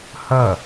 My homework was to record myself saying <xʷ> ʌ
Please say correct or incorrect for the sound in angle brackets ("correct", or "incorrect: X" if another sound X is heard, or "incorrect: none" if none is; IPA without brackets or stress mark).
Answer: incorrect: h